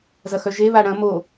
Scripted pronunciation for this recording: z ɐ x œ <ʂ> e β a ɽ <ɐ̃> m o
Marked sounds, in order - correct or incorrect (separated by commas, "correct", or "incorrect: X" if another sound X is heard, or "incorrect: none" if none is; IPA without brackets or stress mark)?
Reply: incorrect: ʒ, correct